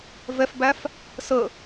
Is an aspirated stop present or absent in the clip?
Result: absent